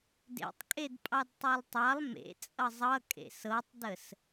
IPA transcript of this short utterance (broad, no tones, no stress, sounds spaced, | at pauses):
d ḛ tˤ kʼ e d pʼ ɑ d tˤ u lˠ tˤ ɑ lˠ m ḛ t͡sʼ ʌ zˤ ʌ kʼ ḛ s ɤ tˤ d ə s